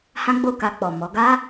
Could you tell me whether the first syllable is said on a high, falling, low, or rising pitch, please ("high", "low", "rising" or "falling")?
high